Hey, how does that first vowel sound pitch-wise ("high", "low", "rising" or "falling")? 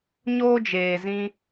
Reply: high